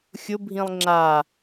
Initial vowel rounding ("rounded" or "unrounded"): rounded